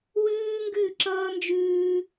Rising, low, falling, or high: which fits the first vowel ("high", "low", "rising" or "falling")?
high